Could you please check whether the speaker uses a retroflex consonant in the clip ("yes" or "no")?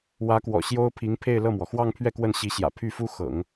no